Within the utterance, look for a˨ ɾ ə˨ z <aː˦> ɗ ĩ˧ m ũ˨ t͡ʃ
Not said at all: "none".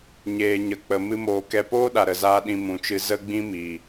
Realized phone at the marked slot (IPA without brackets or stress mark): aː˧